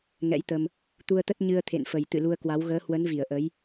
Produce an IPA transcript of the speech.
ŋ ɛ̰˧˥ j t̪ ə˧ m | t̪ u˧ ə̯ t̪ ə˦˥ t̚ ɲ ɨ˧ ə̯ t̪ʰ ḛ˧˨ n f ə˨˩ j t̪ ɨ̰˧˨ l u˧ ə̯ k w a˨˦ w ɣ əː˨˦ h w ə˨˦ n v i˧˩ ə̯ ʔ ə˨˦ j

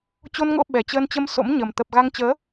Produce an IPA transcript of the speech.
t͡ɕ o˧ n ŋ o̰˧˥ ɓ ɛ˨˩ t͡ɕ əː˧ n t͡ɕ ə˧ m s o̰˧˥ m ɲ ə˨˩ m t̪ ə˨˩ p̚ ɣ a˧ ŋ t͡ɕ əː˨˦

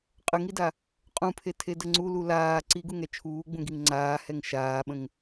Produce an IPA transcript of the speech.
qʼ ə ŋ i d a | qʼ ũ pʰ e tʰ e d ə ŋ͡ǀ u l u l aː ǀ i ɡ u ŋ ɛ t͡ʃʰ uː ɡ͡b ũ ɡ i ŋ ŋ͡ǀ aː h ɛ ŋ ʃ aː ɓ ə̃ ŋ

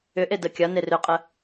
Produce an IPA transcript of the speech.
ʏ ʔ e d ə kʲ ɐ n e r ʏ qʼ ə

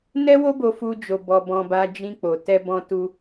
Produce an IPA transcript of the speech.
n ɛ˦ w o˦ b o˧ f u˦ d͡ʒ o˧ b ɔ˧ b ɔ̃˧ b a˧ d͡ʒ ĩ˧ k͡p o˨ t ɛ˧ b ɔ̃˧ t u˧

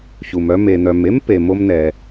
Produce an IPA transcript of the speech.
ç u˩ m œ˧ m e˩ n̪ œ˩ m e˥ m p e˩ m o˧ m n ɛ˩

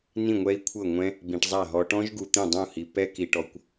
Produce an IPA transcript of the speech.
n ĩ˥˩ ŋʷ ɛ˦˥ i̯ kʷʰ ɤ˥˩ ŋʷ ɛ̃˦˥ | b ĩ˨ ʈ zˤ a˥˩ ɦ ɔ˨ ʈ ɔ̃˦˥ ʒ ɡ u˨ t̪ ĩ˥˩ dˤ ũ˥˩ h i˨ p ɛ˦˥ k i˨ ʈ ɔ˨ kʷ

